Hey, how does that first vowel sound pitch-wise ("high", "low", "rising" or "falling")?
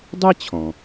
high